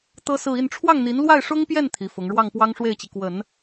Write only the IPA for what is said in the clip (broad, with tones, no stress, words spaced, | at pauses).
t̪ɤ˥sɹ̩˥˧i˥˧n ʈ͡ʂʰwɑ˥˩ŋn̪i˧˥n lwa˥˩ɪ̯ʂʊ˥ŋpjɛ˥˩n t̪ʰi˧˥fʊ˧˥ŋ ɻwɑ˥˩ŋpwɑ˥ŋʂwe˥˩ɪ̯t͡ɕi˩ kwə˨˩˦n